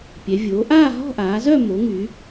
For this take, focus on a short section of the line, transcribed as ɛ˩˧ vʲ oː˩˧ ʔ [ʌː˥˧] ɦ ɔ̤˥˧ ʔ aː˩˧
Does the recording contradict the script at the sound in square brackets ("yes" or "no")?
yes